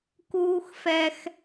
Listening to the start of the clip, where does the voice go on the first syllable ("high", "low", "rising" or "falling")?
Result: high